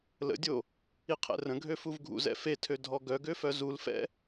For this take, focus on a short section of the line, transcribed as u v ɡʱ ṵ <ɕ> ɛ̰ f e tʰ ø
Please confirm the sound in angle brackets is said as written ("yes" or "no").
no